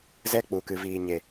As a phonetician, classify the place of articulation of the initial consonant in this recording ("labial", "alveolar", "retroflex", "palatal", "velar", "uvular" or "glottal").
alveolar